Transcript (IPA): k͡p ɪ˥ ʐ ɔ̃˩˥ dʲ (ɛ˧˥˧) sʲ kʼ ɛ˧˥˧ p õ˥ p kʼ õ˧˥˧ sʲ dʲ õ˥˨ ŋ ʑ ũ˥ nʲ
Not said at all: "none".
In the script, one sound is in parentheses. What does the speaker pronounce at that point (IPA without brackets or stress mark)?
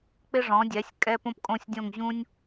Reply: ɛ˩˥